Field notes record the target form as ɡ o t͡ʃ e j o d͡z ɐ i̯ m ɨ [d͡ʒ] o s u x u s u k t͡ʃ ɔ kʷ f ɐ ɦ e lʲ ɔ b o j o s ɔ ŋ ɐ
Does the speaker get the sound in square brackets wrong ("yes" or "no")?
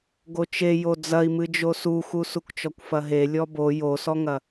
no